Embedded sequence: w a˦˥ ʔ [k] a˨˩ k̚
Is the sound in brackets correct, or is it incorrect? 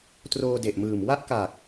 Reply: correct